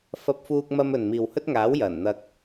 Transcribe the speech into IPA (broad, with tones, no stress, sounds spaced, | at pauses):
f ɐ˥ p̚ f uː˥ k̚ m ɐ˥ m ɵ˨ n m iː˨ w h ɵ˥ t̚ ŋ aː˨˥ w j ɐ˨˩ n n̪ ɐ˧ k̚